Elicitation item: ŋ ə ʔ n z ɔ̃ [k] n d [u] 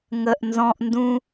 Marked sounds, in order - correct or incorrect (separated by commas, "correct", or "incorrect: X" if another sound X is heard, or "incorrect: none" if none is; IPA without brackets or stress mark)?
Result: incorrect: ʔ, incorrect: ũ